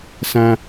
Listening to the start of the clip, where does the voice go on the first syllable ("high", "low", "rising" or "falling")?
high